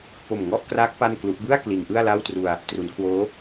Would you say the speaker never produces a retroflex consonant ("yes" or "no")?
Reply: yes